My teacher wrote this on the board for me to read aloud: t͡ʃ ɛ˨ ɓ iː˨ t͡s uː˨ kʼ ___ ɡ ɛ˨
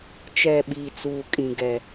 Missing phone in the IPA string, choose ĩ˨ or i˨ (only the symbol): ĩ˨